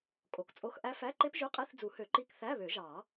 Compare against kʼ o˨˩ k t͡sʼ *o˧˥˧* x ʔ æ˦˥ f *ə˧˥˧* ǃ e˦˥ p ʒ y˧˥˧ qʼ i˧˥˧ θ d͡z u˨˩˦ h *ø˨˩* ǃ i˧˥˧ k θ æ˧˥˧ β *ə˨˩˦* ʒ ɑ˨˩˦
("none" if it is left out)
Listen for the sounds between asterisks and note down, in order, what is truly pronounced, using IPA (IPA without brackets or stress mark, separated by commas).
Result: o˧˥˧, æ˧˥˧, ø˨˩˦, ø˨˩˦